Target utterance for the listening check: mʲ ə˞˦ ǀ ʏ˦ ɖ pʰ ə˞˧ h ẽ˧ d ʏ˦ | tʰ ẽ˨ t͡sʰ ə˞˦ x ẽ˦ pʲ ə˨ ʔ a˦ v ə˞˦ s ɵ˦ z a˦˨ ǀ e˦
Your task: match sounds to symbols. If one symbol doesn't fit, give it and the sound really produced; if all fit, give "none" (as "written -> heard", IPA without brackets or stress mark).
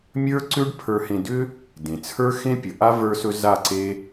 tʰ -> d